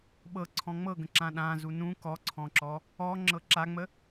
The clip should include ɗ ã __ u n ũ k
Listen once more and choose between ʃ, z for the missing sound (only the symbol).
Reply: z